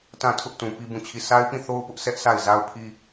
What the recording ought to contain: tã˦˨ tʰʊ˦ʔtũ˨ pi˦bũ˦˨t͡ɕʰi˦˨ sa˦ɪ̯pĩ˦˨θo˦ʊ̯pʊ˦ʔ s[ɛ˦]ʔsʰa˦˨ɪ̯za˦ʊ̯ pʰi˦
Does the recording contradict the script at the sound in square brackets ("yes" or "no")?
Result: no